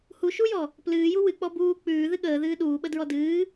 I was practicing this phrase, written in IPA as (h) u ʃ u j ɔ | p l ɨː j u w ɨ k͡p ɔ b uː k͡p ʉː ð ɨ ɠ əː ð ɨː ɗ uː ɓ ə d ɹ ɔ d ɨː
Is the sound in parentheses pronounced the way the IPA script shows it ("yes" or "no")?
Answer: yes